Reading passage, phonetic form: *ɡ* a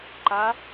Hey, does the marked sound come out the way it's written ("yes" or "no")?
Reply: no